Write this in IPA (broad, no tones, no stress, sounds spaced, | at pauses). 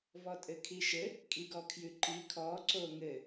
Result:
v ɔ tʼ ɘ kʰ i ʃ ɘ | kʼ i ɡ ɔ kʰ j ʉ ǃ i kʰ ɔ ǀ o ŋ ɘ